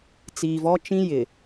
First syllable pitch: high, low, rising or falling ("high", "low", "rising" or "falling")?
low